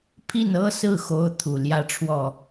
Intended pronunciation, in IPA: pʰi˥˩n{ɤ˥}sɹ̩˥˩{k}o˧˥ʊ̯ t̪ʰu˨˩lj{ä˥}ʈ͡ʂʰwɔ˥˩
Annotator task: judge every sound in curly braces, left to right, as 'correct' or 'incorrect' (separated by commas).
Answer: correct, incorrect, correct